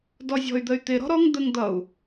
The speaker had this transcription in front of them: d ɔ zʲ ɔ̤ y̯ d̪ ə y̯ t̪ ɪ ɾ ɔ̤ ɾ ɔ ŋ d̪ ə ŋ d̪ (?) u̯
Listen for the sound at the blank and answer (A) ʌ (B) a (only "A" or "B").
A